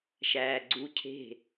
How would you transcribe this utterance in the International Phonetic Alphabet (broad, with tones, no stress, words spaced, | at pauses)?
ʃæː˧ɡ͡ǀu˧˥˧ cʰe̤˥˨